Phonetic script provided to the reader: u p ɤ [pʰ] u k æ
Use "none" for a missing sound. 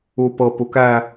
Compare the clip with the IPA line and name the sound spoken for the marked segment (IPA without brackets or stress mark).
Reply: p